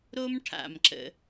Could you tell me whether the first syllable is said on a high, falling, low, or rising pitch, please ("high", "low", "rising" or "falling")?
high